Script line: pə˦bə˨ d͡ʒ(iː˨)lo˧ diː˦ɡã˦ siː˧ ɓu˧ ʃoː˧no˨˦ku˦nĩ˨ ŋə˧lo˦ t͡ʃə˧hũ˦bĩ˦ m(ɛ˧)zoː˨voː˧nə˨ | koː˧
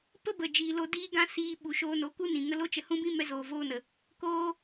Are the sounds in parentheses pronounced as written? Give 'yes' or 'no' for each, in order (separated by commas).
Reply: yes, yes